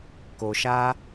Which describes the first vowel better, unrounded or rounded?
rounded